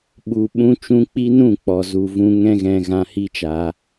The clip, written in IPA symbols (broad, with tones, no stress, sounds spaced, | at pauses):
ɓ u˨ ɓ ũ˧ t͡ʃ ũ˧ k͡p i˦ n ũ˦˨ k͡p ɔ˨ z u˨ v ũ˧ ŋ ɛ̃˦ ɣ ɛ̃˧ ɣ ã˧ h i˦ t͡ʃ a˧